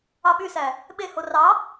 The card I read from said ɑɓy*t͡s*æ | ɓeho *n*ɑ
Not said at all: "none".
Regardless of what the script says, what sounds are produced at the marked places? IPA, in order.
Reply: s, r

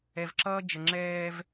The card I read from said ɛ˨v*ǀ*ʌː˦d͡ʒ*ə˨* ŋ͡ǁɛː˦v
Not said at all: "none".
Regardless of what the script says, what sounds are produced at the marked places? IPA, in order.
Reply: ǁ, ə˨

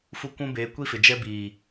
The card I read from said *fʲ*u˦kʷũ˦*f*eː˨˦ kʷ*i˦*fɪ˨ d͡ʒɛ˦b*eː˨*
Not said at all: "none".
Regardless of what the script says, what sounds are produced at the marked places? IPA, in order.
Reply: f, b, i˦, iː˨

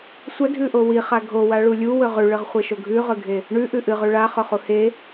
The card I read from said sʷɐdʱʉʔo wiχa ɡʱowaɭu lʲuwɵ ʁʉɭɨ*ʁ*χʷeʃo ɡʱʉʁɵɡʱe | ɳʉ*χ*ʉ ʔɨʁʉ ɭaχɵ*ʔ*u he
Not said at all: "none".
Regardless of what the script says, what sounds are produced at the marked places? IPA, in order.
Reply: ʁ, ʔ, χ

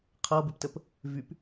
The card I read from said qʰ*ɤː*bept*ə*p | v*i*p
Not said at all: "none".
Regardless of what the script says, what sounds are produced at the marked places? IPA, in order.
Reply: ɤː, ə, y

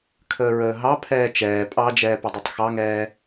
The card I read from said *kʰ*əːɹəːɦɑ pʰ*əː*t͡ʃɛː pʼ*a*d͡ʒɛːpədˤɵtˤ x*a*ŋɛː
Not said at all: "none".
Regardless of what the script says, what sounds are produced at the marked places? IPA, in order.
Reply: kʰ, ɛː, ɑ, ɑ

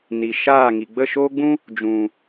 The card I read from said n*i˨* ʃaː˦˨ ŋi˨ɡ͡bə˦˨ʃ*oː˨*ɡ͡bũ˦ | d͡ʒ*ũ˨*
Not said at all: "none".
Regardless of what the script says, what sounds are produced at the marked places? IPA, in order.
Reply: i˨, oː˦, ũ˨

